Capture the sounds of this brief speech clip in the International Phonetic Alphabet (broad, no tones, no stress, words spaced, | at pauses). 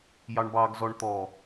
jɑɳbɑɡ zɔɳt̪ɔ